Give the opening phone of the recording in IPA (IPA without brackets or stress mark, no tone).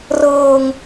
r